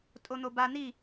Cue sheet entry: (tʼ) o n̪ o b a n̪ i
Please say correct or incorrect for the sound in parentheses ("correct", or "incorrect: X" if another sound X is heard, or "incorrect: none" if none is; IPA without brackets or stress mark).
correct